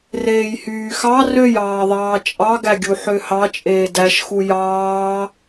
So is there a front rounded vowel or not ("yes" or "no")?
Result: yes